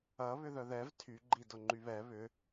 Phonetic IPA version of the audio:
ɐ βʏðœðɛv tʰy ɡ͡ǃidʊŋ͡ǃyβɛ βʏ

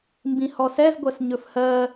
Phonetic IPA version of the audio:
mbĩhɔsɛz ɡʷɜsɲɵfhɜ

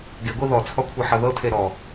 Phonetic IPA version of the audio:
ɡeɡʷi ðɔt͡sʰɔkʷʰɤħɤ ðɤtʰe ɾɔ

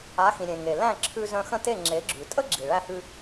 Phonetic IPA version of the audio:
a˩˥xĩ˩ ɾʲẽ˩ ŋe˩ læ̃˥˩ǁʰʉ˧ zœ̃˧xə̃˥˩te˥˩ ŋ͡ǁe˩˥ɡ͡ǁʉ˩tʼə˥ɡ͡ǁi˩ ɭæ˧hʉ˧

